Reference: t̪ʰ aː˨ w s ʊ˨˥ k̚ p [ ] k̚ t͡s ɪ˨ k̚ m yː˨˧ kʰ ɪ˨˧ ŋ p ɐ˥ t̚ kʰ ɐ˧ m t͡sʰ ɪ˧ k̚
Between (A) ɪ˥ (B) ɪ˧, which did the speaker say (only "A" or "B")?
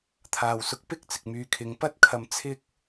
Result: A